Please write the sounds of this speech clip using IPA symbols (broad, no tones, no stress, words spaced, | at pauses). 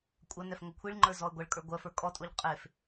kʷʼɐ nɛfŋokʷʰiɭŋ͡ǃə˞ zɔə̯ɡʷɐɭkʼə˞ ɡʷɜfə˞ kʼɔtʼoʎ qʼef